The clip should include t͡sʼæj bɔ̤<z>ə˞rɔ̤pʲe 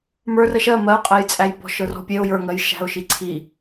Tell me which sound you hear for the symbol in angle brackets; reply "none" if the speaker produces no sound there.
ʃ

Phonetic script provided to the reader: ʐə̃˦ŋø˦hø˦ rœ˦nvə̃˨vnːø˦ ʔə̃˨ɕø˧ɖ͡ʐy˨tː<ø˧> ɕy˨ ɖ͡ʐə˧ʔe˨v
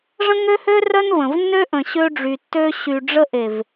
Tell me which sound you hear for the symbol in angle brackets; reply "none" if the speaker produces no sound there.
ø˧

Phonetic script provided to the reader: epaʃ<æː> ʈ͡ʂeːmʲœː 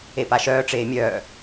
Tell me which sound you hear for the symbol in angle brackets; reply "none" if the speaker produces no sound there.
œː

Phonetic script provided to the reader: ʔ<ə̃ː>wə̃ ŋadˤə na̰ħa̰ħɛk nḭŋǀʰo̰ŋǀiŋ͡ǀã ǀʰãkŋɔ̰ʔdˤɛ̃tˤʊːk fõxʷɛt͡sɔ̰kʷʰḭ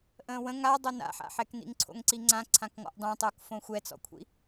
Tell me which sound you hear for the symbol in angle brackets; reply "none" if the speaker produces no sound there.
ə̃ː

